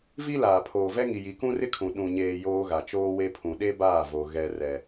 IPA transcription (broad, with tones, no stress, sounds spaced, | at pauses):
v i˦ l aː˨ pʰ oː˨ v ɛ˦ ŋ i˨ j i˨ k ũ˦ r ɪ˦ kʰ ũ˨ ɗ ũ˨ ɲ eː˨ j oː˦ ɣ a˨ t͡ʃ oː˦ w e˦ pʰ ũ˨ ɗ e˦ b aː˦˨ v o˨ ɣ ɛ˦ r ɛ˦